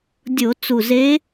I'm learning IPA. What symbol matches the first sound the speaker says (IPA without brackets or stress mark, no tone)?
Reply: dʲ